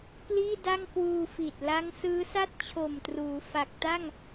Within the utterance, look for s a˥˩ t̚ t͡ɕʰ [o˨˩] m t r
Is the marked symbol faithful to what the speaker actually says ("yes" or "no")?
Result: yes